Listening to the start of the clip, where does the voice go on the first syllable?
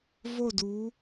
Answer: falling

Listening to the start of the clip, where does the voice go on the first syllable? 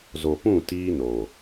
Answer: low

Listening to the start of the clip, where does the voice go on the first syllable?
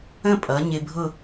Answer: falling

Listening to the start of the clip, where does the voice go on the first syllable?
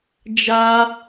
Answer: high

